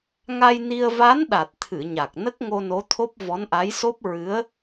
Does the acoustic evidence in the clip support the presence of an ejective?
no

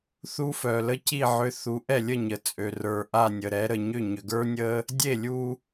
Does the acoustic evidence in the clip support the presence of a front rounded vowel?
yes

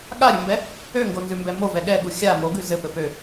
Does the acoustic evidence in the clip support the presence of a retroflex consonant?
no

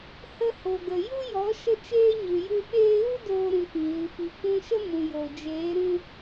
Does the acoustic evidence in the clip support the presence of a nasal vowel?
yes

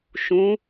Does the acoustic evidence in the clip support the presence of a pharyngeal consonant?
no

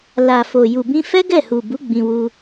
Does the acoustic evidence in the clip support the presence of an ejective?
no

